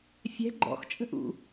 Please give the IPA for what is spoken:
fʲɛ̤ ɡ͡ǃɔ̰xt͡ʃʼə̤ʔṵ

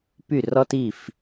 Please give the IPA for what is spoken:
py˥˩rɔ˥t i˥˩f

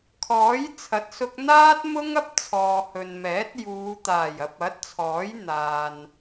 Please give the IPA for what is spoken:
kʰɔː˨˥jt͡sʰɐ˨˥t̚sʊ˧k̚ n̪aː˥t̚mʊ˥ŋ ɐ˥p̚t͡sʰɔː˨ hɵ˨nmɛː˨˥t̚ juː˨˧ t̪aː˨˩jɐ˨p̚ɐ˨˥t̚t͡sʰɔː˨˥j n̪aː˨n

